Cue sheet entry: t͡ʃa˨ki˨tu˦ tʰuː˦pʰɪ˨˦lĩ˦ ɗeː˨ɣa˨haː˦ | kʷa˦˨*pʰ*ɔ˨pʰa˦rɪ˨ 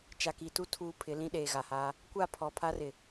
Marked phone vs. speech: correct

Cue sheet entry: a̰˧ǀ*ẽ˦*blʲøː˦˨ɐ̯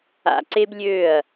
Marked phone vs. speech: incorrect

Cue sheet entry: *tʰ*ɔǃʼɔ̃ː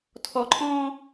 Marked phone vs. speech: correct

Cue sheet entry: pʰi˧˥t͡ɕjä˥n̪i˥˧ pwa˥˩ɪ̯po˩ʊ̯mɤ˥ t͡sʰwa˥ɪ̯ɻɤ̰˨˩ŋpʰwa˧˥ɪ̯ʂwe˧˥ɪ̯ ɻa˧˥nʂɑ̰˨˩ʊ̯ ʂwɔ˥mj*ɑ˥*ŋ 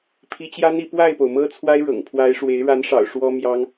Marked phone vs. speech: correct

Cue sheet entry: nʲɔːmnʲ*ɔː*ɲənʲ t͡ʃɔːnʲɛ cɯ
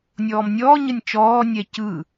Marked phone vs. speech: correct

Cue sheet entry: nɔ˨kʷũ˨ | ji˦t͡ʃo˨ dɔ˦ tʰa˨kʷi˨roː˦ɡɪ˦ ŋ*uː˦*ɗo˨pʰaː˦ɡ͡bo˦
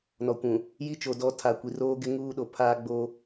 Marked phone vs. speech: correct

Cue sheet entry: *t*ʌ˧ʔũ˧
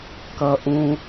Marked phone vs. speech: incorrect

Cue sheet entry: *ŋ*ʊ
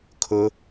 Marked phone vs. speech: incorrect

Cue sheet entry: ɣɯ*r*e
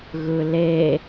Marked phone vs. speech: incorrect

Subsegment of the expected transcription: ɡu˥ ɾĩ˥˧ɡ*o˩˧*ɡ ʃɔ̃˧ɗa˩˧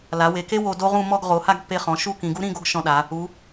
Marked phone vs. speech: incorrect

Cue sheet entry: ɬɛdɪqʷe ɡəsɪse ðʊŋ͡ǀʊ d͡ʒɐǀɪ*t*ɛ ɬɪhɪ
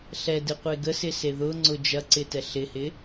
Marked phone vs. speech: correct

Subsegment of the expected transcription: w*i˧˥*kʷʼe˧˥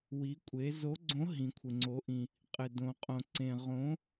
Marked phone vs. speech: correct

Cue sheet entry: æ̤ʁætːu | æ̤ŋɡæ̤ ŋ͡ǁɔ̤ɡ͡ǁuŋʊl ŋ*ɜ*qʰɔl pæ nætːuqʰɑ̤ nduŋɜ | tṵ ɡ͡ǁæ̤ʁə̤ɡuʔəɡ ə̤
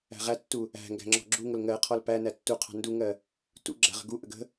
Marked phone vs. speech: correct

